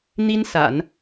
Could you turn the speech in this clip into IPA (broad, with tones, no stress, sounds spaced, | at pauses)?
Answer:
n̪ i˥ n s a̰˨˩˦ n